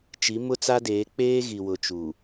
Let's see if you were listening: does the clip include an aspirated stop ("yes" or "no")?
no